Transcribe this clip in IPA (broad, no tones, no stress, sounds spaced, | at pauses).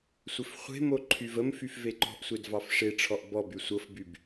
sʷ ɘ f χʷ e̤ m o ǃʰ y v ə m f y f v e ǃ ɔ̤ ʔ sʷ e d v ɑ f ʂ e ʈ͡ʂʰ ɔ ʔ b ɔ b y sʷ ɤ f b y b